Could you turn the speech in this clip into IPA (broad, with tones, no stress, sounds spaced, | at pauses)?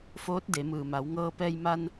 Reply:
f oː˧˥ t̚ d e˩˧ m ɯː˩ m a˩˧ w ŋ ɤː˧ p ɛː˧ j m a˧ n